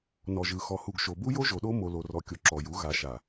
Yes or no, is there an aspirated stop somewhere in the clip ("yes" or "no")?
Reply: no